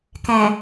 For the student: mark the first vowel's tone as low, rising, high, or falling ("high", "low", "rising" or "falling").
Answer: low